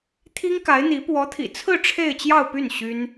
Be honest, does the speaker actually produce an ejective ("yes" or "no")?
no